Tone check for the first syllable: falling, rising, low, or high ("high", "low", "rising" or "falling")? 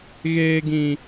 high